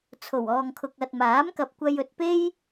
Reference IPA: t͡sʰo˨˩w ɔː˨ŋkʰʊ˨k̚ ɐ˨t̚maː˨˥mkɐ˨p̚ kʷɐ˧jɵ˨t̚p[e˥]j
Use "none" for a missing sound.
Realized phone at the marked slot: e˥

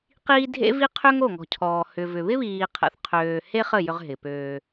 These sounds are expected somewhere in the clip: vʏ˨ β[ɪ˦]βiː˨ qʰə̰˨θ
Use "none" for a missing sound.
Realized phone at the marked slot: ɪ˦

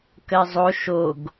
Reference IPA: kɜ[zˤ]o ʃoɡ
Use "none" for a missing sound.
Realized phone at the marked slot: zˤ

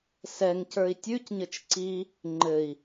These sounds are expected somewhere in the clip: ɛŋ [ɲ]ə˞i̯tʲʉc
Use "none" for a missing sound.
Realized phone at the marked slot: c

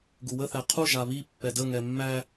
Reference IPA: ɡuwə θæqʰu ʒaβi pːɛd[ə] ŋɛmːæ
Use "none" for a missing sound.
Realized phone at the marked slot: ə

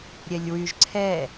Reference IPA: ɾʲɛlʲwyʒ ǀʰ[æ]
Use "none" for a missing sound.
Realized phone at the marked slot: ɛ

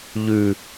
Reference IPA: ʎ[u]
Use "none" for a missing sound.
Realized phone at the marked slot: ʉ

